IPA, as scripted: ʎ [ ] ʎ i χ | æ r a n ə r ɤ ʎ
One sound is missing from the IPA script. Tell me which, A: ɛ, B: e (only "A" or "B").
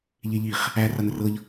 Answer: B